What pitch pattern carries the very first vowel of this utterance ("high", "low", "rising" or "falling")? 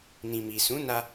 low